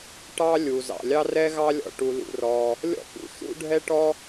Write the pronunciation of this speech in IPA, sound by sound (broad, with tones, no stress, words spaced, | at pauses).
ʈɑ˥ lʲu˩ zɑ̰˩lʲɑ˥rɛ˥ ɣɑ˥lʲɔ̰˩ ʈu˩lṵ˩rɔ˩ | lʲɔ̰˥pṵ˩ ʃṵ˥ɖʱɛ˥ʈɔ˥